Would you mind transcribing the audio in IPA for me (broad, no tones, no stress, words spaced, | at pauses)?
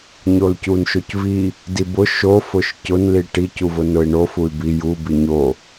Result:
ɲolcunʃocvi | dibʊ ʃo fʊʃcʊn liʈi cuvʊnʊi̯ɳo fuy̯bi ju biɲo